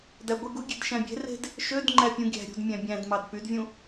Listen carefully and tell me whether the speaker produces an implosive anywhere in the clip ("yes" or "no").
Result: no